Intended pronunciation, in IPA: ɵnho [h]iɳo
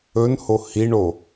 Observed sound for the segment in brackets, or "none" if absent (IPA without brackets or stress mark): h